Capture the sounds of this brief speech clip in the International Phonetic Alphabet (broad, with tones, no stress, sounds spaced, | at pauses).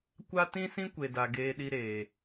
kʷ a˦ t ĩ˦ s ĩ˦ kʷ e˨ d a˨ ɡ eː˧ ɗ i˧ ɾ eː˨